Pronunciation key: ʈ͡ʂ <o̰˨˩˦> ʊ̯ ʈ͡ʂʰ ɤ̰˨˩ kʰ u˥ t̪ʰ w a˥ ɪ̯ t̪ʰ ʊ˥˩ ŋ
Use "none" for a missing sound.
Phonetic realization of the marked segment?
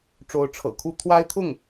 o˧˥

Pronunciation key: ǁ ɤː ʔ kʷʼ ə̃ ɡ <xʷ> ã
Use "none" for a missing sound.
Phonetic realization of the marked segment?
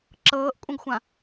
xʷ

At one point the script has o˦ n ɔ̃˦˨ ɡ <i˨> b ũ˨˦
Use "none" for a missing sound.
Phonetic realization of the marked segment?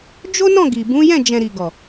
i˨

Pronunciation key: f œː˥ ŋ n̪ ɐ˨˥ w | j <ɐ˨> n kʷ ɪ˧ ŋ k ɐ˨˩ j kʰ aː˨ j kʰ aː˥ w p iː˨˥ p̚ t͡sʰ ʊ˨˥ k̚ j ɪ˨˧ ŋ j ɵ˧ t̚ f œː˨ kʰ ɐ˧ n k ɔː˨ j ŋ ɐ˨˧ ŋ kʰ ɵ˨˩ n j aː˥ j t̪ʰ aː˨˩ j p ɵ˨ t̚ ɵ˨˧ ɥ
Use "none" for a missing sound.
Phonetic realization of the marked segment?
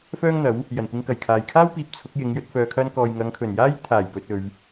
ɐ˨˩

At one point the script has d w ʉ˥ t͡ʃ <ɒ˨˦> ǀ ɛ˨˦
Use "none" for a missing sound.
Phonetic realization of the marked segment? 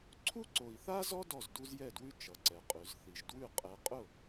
ʌ˨˦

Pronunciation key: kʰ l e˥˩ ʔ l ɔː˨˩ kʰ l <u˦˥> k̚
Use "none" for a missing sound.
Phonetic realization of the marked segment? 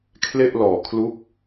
u˦˥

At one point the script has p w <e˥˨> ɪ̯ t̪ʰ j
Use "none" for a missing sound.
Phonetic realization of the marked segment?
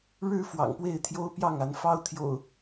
e˥˨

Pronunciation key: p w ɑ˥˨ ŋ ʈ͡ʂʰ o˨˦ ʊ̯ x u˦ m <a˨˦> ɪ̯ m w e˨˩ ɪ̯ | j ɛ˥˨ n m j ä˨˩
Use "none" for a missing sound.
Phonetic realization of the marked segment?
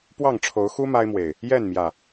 a˦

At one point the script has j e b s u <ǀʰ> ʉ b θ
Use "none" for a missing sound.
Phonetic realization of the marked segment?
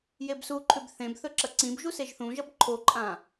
ǃʰ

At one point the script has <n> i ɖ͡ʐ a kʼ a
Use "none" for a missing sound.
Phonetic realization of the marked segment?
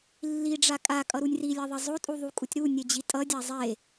lː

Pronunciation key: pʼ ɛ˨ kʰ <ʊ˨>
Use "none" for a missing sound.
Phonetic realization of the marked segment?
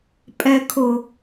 ʊ˨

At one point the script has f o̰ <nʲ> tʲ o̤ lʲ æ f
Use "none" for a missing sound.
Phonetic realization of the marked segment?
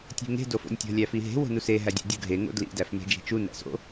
nʲ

